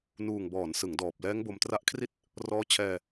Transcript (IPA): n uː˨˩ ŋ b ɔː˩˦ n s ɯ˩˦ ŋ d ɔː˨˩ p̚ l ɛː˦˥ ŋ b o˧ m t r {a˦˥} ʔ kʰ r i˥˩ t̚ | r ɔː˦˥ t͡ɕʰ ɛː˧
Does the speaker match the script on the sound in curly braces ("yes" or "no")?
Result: yes